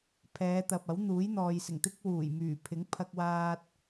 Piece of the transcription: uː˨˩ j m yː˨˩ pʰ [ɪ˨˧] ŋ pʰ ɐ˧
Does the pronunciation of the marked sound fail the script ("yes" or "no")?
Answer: yes